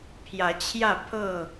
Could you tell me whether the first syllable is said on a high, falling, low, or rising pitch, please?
rising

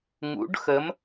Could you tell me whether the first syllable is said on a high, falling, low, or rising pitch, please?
rising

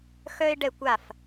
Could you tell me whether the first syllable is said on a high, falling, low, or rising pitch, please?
high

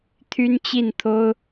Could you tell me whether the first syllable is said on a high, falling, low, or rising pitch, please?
high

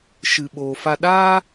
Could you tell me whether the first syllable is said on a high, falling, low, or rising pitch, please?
low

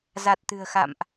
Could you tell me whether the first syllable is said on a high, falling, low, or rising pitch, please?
low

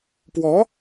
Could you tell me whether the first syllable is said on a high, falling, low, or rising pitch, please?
rising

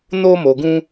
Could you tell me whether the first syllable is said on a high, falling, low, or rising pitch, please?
high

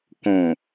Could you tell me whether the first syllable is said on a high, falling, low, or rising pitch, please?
low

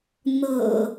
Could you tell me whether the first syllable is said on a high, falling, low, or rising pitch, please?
low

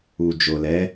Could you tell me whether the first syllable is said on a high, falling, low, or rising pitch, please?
low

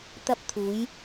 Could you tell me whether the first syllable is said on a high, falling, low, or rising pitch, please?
high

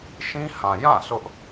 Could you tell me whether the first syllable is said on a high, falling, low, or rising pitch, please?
high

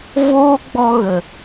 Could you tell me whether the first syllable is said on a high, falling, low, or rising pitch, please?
high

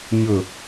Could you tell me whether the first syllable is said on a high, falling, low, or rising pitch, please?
falling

